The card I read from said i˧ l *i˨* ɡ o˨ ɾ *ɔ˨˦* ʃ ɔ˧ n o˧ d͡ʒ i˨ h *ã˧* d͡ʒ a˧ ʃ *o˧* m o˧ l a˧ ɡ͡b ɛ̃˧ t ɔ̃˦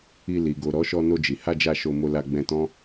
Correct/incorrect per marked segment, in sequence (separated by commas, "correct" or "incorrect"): correct, correct, incorrect, correct